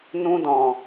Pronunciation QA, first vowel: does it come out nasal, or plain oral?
nasal